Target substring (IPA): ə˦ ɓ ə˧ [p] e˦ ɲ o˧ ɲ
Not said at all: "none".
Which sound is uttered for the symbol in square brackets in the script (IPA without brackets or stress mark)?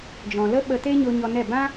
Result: t